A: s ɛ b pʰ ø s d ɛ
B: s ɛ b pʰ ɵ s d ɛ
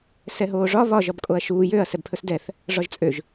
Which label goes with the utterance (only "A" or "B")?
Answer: B